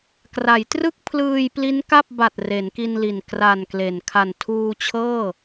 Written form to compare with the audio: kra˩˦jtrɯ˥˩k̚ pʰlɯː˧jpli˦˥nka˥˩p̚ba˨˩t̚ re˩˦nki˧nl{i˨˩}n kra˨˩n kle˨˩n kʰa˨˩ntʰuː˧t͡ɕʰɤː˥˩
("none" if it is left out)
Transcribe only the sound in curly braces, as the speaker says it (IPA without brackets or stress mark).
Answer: i˨˩